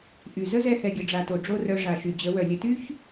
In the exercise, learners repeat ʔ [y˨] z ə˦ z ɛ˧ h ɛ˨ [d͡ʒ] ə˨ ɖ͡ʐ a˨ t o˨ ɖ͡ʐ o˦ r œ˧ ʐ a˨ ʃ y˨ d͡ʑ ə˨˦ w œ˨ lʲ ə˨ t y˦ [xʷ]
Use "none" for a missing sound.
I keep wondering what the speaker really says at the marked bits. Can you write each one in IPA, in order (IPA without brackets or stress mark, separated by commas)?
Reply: y˨, ɡʲ, ç